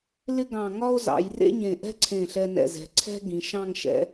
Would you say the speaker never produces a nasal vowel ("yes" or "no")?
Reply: no